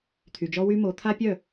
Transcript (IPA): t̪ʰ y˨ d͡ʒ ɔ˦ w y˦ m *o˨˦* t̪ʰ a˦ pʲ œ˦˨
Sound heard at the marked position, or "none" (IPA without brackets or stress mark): o˨˦